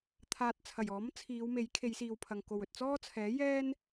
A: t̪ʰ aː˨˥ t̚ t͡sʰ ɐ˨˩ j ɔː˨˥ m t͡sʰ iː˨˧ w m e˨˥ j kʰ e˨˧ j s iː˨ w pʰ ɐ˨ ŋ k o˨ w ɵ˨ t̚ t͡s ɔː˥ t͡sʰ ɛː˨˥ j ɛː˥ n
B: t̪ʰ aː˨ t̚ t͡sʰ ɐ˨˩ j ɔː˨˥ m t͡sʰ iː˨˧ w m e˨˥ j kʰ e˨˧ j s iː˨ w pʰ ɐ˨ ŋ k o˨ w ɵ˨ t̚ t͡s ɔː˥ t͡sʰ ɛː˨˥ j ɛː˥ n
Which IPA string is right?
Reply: B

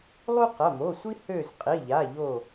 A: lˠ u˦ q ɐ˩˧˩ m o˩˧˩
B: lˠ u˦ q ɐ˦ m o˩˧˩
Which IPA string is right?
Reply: A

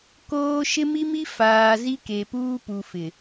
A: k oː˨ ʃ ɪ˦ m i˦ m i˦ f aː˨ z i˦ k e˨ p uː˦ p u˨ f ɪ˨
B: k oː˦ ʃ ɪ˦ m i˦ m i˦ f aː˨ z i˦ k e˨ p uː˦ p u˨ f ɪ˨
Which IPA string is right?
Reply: B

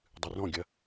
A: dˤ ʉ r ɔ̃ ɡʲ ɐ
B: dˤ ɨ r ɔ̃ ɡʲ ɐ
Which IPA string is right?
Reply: B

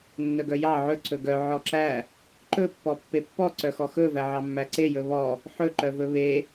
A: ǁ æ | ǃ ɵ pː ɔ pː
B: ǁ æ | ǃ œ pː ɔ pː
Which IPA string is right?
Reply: A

